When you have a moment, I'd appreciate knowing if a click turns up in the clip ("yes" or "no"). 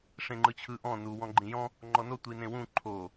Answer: yes